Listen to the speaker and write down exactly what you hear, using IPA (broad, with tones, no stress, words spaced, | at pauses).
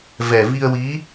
vɛ˨˩vi˧ə̯wi˧˥